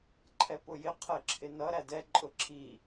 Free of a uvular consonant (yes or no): no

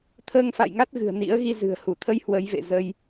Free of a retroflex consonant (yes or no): yes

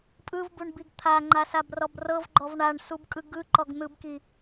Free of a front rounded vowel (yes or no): yes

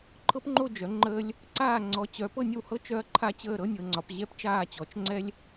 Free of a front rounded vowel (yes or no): no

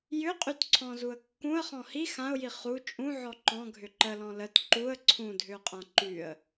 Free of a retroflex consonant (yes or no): yes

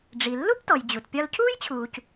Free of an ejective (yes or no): yes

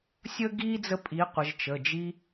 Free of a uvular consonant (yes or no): no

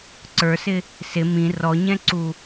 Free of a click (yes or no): no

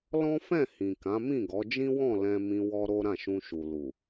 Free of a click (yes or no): yes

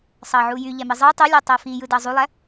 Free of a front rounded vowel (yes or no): no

